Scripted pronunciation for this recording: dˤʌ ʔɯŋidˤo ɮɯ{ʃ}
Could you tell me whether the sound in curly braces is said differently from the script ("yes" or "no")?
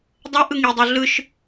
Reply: no